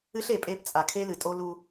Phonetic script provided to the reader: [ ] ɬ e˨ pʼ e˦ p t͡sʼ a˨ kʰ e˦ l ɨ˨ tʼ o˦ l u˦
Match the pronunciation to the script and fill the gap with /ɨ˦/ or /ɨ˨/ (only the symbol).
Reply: ɨ˦